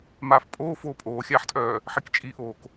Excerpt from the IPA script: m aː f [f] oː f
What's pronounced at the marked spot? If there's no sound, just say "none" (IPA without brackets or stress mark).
pʼ